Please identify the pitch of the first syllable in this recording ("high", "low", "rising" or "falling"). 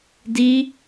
high